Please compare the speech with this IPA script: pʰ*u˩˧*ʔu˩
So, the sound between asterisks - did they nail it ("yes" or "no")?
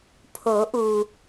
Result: no